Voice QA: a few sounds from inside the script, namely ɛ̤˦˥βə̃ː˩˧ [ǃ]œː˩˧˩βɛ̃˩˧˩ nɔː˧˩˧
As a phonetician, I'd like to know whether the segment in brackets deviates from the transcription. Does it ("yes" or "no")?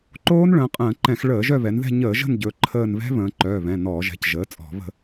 no